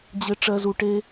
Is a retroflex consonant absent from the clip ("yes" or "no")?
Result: no